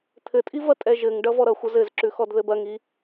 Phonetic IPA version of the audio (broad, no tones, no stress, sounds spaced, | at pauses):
t̪ʰ ɘ tʼ i v ɐ tʼ ɛ ʒ ɘ ŋ ɖ ʌ v ɔ ɾ ʌ xʷ ʌ z ɘ z ǁ ʉ x ɔ d ð ɘ b ɐ ŋ i